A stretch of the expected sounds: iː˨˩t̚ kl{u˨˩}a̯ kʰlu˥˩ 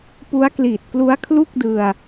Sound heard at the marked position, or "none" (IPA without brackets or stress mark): u˦˥